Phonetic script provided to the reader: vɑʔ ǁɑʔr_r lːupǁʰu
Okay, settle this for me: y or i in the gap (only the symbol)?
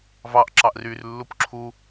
y